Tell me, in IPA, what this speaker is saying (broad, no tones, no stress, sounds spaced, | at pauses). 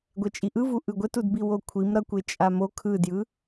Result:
ɡʷ ɛ t͡ʃʼ i ʔ ɯ v u ʔ ɯ ɡʷ ɛ t u d b i w o kʷʰ i m ɾ ʌ kʷ e t͡ʃʼ a m o kʰ ɯ d j ɯ